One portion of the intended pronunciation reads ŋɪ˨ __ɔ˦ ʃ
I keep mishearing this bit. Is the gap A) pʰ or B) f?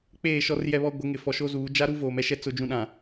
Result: B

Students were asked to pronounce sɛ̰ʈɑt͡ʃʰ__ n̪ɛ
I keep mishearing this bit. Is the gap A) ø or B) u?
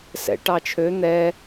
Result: A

